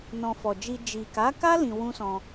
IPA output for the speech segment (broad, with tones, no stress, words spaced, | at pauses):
nɔ̃˧ fɔ˨d͡ʒi˧ d͡ʒi˨ka˨˦ka˦ lĩ˧wũ˦sɔ̃˧